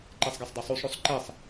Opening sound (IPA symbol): ǃ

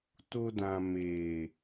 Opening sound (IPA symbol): t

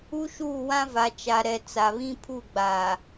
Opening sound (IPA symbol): u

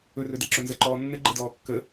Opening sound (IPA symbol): ɵ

